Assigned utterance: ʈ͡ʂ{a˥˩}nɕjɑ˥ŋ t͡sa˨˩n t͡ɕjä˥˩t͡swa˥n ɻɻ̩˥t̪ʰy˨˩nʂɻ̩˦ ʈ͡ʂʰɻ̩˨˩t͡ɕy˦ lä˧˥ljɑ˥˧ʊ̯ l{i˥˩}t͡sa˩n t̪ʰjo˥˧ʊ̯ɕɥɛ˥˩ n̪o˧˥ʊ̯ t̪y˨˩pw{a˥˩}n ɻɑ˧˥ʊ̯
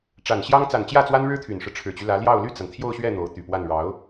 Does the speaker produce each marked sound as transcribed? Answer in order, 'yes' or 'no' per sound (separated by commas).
no, no, yes